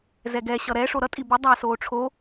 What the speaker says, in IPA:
zɛɡɛ ɕʌɾɛ ʂoɾʌ tʼibi dˤasoːʈ͡ʂʰo

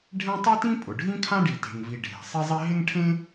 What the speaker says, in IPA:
ɖʱẽ˥ tˤi˥tĩ˥ pʼʊ˩ɖʱĩ˥ kʰã˥ɖi˩te̤˩ŋvi˩ ɖʱe̤˩ sˤi˥zˤi˥ ɦɪ˥ŋʈʰẽ˥

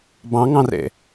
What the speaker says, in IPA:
bɑ̃ŋɑ̃rḛ

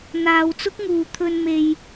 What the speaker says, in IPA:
n̪aː˨˧wt͡sʊ˥k̚ŋuː˨ t̪ʰɵ˨nme˨j

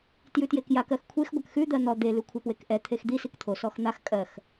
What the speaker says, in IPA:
tjʉtjekjak ɜxkʷʰex ɡʷakxʉ d̪ɜn̪ɔ d̪e lʉkʷʰapwekʔɛ t̪ʰexd̪i sikt̪ʰo sɔxn̪ax kʼɜx

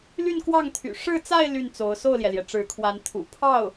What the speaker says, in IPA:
ly˥˧nkwɑ˥˩ŋt̪ʰy̰˨˩ ʂɻ̩˥˧t͡sa˥˧ɪ̯ ly˥˩nt͡so˧˥ʊ̯ so˥˩ʊ̯ljɛ˩ljɛ˩ ʈ͡ʂɻ̩˧˥kʰwa˧˥nt̪ʰṵ˨˩ pʰɑ˥˩ʊ̯

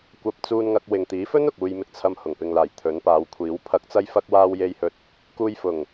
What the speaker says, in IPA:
kʷɐ˧p̚t͡suː˧nŋɐ˧k̚ wɪ˨ŋt̪iː˨˥fɵ˥n ʊ˨k̚uː˧jmɪ˧k̚t͡sʰɐ˧m hʊ˨˩ŋpɪ˨ŋlaː˨˩j t̪ʰɵ˨˥npaː˨˧w kʷʰiː˨˥w pʰɐ˨˥k̚t͡sɐ˧jfɐ˧k̚ waː˧wje˧jhɵ˧t̚ | kuː˧jfʊ˨˩ŋ

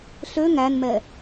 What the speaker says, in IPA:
ɬø ŋænmɛ

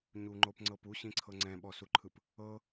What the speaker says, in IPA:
ɲuŋ͡ǃopŋ͡ǀɤp uɕĩǀʰɤ ŋ͡ǀɛ̃ɓɔsuǃʰɯp | ɤ

